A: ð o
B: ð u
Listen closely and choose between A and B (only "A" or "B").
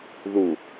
B